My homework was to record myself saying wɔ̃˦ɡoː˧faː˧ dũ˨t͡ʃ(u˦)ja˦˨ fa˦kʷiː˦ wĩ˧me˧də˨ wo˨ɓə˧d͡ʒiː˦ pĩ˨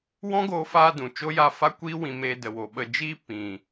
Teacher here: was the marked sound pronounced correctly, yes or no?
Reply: no